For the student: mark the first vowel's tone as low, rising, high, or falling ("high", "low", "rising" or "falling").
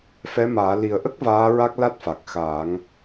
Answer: rising